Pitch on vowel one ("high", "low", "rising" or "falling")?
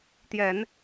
low